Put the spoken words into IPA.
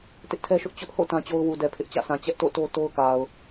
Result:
tɪ˦ʔtʰɛ˦ʃʊ˦ʔ t͡ɕʊ˦ʔho̰˦˨ tã˦t͡ɕo˦ʊ̯ wu˨dɛ˨ pʰɪ˦ʔ t͡ɕä̰˦˨sʰã˨ t͡ɕɛ˦ʔto̰˦˨to˦ to˦ʊ̯ka˨ʊ̯

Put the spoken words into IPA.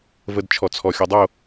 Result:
vədt͡ʃʰɔt͡sʰɔ xʲodˤo

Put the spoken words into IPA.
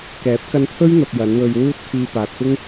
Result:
kɛː˨˥p̚kɐ˧nt̪ʰɵ˥ɥ n̪ɐ˧p̚jɐ˨˥nwɵ˧ɥ wuː˧t̚ kʰiː˧paː˨t̚pɪ˥ŋ

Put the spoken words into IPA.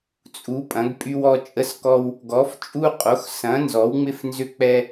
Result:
t͡sʼu˩˥ pʼɐ̃˩˥ɡpʼy˦wɔ˦ t͡ʃʼə˦skɔ˦w | ɡɔ˩˥ft͡ʃʼu˦qʼo˩˥x sɐ̃˩˥ nzɔ˩˥wŋ͡mɪ˦f nzʏ˦k͡pɛ˦

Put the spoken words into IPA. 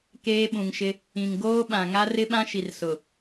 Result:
keː˦ɓũ˨ŋʃɪ˦ | ĩ˨ŋ ɡoː˦ɓã˨ ŋa˦rɪ˦ɓã˦ ʃi˨r sʊ˨

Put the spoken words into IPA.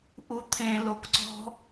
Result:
ʔut̪ʰẽ lokǀɔ̤

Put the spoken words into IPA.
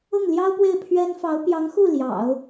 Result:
ʊ˥˩ŋljɑ˥ʊ̯pwe˥˩ɪ̯ pʰɥɛ˥n fɑ˧˥ʊ̯pjɑ˧˥ŋ xu˥˩ ljɑ̰˨˩˦ʊ̯

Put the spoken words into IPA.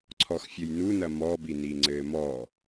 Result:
ǀʰɔxfʲɘjnunɐ mɔbini ŋ͡ǀɘːmɔ

